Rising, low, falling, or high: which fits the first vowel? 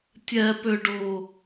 low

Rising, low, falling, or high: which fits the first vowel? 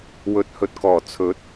low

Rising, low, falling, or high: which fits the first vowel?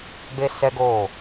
high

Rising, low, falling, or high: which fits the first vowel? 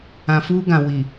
low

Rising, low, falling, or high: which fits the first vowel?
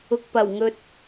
low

